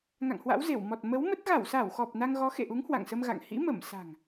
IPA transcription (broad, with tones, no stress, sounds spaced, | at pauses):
ŋ a̰˧˨ ŋ h w a̰˧˥ w z e˧˩ w m ɔ˨˩ t̚ m ə˨˦ w m ə˦˥ t̚ ɣ a˧˩ w s a˧˩ w x ɔ˨˩ p̚ n a˧ ŋ ɣ ɔ˨˦ x ḛ˧˨ ʔ u˨˦ ŋ h w a̰˧˨ ŋ s ə˧ m ɣ a̰˧˨ ŋ h ḭ˧˥ m ə˧˩ m s a̤˨˩ ŋ